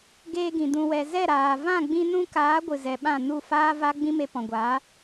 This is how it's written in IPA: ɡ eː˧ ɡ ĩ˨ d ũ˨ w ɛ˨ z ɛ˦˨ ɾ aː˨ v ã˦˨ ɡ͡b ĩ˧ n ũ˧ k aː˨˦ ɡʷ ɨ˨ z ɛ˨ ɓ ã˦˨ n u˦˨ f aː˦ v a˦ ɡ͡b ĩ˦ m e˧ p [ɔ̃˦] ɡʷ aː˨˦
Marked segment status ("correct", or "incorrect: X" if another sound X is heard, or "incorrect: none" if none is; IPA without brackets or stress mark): incorrect: ɔ̃˨